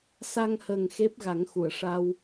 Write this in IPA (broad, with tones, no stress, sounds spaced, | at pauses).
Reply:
s a˧ ŋ h ə˨˩ ŋ x e˦˥ p̚ ɣ a˨˩˦ ŋ x u˨˩˨ ə̯ ʂ a˧ w